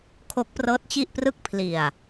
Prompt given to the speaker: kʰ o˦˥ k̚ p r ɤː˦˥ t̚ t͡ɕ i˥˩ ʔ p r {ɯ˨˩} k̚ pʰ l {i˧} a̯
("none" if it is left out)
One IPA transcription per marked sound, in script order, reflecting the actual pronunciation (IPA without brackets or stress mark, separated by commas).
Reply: ɯ˥˩, i˨˩